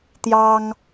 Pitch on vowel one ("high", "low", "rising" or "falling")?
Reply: high